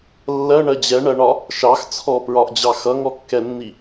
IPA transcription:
lː ɜ ɳ ɜ d͡ʑ ɛ ɳ ɜ ɳ ɒ | ʃ ɑ x t͡sʰ ɔ p ɹ ɒ ʔ d͡ʑ ɑ x ʌ ŋ ɔ kː ɛ nː i

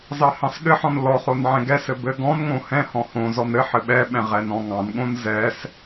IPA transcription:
z ɑ h ɑ̃ s ɠ ɘ ħ ɔ̃ n l ɔ χ o n ʕ ɛ̃ ɡ ɛ s ɘ b ɘ ɡ ɔ̃ n ŋ õ h ɛ̃ h ɔ̃ h õ z ɔ n ɘ ħ ɘ ɓ ɛ ɓ ɛ̃ ʁ ɛ n ɔ̃ ŋ ɑ̃ n ɠ õ n z ɛ s

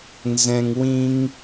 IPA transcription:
n z ɛ̃˩ ŋ w ĩ˨ ŋ

